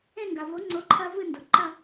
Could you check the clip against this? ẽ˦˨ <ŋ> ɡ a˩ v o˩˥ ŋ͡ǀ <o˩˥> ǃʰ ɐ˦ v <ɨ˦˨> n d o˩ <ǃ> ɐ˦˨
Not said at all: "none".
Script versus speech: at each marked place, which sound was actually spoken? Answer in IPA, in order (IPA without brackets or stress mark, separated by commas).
ŋ, o˩˥, ɨ˦˨, ǃ